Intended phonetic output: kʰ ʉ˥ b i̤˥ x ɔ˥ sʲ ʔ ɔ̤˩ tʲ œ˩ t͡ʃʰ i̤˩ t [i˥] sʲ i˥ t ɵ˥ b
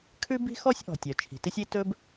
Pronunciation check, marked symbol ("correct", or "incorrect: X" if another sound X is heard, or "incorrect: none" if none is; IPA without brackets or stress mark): correct